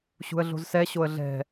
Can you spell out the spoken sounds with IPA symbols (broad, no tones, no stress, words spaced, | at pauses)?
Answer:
ɕṳə̯ɮo̤zsɛ ɕoə̯ɮɛ̤